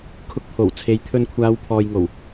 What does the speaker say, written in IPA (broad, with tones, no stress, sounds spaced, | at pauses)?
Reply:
kʰ ʊ˧ k̚ pʰ o˨˩ w t͡sʰ e˨˧ j t̪ʰ ɵ˧ n kʷʰ aː˨˧ w pʰ ɔː˨ j ŋ o˨˩ w